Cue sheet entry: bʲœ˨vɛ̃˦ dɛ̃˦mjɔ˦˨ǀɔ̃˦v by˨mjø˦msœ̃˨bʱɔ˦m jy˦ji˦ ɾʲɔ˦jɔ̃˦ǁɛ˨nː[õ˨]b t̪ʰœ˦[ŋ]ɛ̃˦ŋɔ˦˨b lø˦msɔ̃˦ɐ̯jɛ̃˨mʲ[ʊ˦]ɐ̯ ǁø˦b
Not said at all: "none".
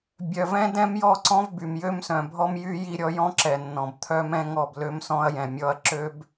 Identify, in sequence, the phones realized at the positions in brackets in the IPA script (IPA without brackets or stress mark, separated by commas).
ɔ̃˨, m, ɔ˦